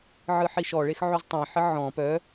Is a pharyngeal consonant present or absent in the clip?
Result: present